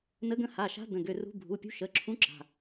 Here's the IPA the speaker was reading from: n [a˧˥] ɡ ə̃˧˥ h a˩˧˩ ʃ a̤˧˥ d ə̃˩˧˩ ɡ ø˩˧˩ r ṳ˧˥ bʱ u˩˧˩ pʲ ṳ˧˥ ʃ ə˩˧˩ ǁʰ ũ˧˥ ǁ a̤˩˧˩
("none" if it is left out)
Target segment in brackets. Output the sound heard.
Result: ə˧˥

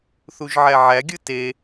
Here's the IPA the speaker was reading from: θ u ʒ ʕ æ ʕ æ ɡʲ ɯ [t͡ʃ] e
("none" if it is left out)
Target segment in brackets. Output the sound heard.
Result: t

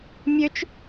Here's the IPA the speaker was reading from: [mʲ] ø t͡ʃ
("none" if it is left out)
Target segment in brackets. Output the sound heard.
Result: mʲ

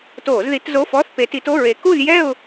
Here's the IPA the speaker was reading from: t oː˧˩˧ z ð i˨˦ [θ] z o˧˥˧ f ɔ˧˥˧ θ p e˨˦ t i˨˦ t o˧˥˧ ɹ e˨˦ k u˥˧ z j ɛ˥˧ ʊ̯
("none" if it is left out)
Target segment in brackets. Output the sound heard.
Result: t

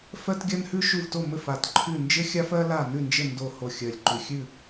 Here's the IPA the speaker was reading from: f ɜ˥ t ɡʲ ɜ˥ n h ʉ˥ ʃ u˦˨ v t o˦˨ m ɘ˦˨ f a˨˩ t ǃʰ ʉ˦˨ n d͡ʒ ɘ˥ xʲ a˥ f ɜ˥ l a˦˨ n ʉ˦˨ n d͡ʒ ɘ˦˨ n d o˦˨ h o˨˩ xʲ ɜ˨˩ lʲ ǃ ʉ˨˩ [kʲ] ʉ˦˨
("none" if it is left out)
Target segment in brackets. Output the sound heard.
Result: xʲ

